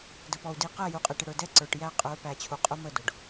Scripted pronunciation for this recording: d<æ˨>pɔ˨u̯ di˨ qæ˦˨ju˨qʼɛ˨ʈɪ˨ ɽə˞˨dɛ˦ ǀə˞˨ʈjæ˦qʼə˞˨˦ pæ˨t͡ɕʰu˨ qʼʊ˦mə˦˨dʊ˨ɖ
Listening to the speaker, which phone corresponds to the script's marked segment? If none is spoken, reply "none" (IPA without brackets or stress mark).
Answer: ə˨